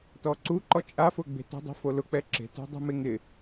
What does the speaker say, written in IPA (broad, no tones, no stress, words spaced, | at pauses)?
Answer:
tɔǀuǃɔ t͡ʃʼafʊ ɡ͡be̤tɔ̤dˤe̤fo lʊk͡pɛ ǁe̤tṳ dˤṳmeŋɪ